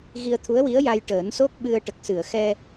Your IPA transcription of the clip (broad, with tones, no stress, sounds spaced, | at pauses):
ɣ i˧ ə̯ t̪ʰ u˧˥ ə̯ w i˧˥ ə̯ j a˧ j ʈ əː˨˩˦ n s o˦˥ k̚ ɓ ɨ˧ ə̯ ʈ ə˨˩ k̚ s ɨ˨˩˨ ə̯ x ɛ˧